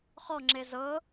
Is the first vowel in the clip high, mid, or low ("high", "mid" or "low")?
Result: mid